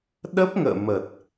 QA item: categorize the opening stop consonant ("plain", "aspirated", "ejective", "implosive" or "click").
implosive